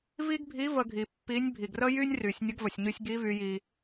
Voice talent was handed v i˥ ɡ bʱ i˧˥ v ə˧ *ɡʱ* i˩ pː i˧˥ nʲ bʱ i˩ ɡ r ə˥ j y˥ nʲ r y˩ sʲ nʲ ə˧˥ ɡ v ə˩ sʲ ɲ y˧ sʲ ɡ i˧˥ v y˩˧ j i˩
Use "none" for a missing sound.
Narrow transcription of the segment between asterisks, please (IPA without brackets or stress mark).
ɡʱ